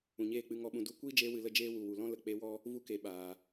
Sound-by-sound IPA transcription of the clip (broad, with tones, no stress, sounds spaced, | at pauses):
ũ˨ ɲ eː˦˨ k͡p ɨ˧ ŋ ɔ˧ ɓ ũ˨ d u˨˦ kʷ iː˦ d͡ʒ eː˧ w ɨ˨ l ə˦˨ d͡ʒ eː˦ w u˨ w u˨ l ɔ̃˦ l ə˨ k͡p e˧ w ɔ˦ | v u˧ k e˨ ɓ aː˨